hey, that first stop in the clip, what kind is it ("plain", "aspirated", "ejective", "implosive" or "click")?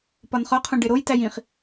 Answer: plain